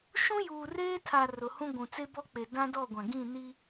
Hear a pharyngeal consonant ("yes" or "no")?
no